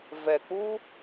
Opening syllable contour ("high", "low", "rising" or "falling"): low